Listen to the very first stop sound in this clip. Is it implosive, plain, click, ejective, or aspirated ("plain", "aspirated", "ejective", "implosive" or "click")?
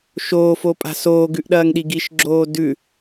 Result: ejective